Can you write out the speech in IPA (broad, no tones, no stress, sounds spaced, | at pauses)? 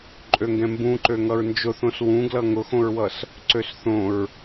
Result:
ǃʼ ø ŋ ɡ ɛ̃ m b ũ ǃ ø ŋ ʌ ɹ n d͡ʒ ʊ θ õ s w ũ ɡ l ʌ ŋ ʊ x õ ɹ w ʌ s | ǀ ø s θ õ ɹ